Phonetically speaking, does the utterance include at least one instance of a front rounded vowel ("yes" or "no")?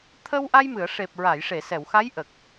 no